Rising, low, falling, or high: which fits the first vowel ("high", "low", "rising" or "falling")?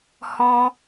high